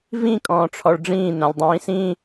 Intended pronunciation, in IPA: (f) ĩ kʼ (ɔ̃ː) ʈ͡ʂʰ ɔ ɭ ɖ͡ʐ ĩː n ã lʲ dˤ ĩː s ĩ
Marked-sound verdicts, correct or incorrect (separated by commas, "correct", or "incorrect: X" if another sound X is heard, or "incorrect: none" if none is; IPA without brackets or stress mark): incorrect: v, correct